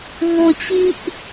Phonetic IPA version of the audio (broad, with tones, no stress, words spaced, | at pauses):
ŋɔ̃˧t͡ɕi˦ʔ